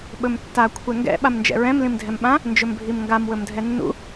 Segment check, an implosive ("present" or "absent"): present